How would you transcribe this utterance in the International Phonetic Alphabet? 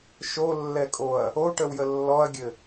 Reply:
ʃ o lː ɛ kʼ o ɐ̯ | o ʈ ə w j ə lː ɔ ɐ̯ ɡʲ ɘ

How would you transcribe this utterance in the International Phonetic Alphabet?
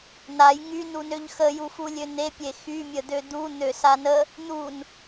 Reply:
n a j ŋ y n u n ø ʎ x ə j u f u lʲ ø n̪ e pʲ e x y mʲ ə d̪ ø d̪ u n̪ ø s a n ə | n̪ u n

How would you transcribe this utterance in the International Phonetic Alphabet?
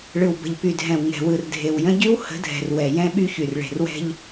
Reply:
ɭ ɯ˨ w b ə̤˨ ʎ p y˨ dʱ ɛ̃˨ w ŋ ɛ̤˨ w ɯ˨ r dʱ e˨ w j ə̃˦ ɟ y˦ w h ə̤˨˦ dʱ ɛ̤˨ r w ɛ˨ j ɛ̃˦ ɓ y˦ ç y˨ r ɭ e̤˨ r w ɛ̤˦ ʎ

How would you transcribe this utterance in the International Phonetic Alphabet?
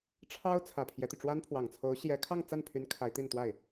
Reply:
ʈ͡ʂʰ ɑ˥ ʊ̯ t͡sʰ ä˨˩ pʰ j ɛ˦ t̪ y˩ ʈ͡ʂ w a˥ n pʰ w ɑ˨˩ ŋ t͡sʰ o˧˥ ʊ̯ ɕ j ɛ˧˥ kʰ ɑ˥˧ ŋ t͡s a˥˩ n pʰ y˧˥ n kʰ a˧˥ ɪ̯ t̪ i˥˧ n t̪ w a˥˩ ɪ̯

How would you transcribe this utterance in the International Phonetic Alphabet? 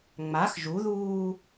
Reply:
ŋ͡m a x ʒ u ð uː

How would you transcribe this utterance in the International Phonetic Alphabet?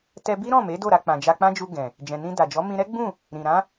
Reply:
t ɛ˧ b i˦ ɾ ɔ̃˦˨ m e˨˦ d o˦˨ ɾ a˧ k͡p ã˨ d͡ʒ a˧ k͡p ã˦ d͡ʒ u˧ ɡ ɛ̃˨ | d͡ʒ ɛ̃˨ n ĩ˧ d a˨ d͡ʒ ɔ˨˦ m ĩ˧ ɾ ɛ˦ ɡ͡b ũ˦˨ | ɾ ĩ˨ ɾ ã˨˦

